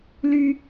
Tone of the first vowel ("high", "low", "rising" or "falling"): high